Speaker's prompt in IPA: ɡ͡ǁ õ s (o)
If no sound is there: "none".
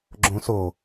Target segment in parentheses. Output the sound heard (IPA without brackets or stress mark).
o